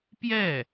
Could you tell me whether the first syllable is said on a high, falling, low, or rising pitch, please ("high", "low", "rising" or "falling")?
falling